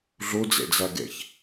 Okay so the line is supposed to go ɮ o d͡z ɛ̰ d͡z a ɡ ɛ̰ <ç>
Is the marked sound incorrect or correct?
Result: correct